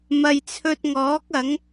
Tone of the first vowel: low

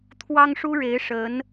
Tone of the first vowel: high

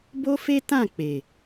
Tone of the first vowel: high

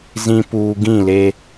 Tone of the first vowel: low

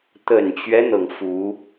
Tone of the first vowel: low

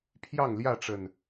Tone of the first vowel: falling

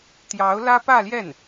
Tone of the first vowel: rising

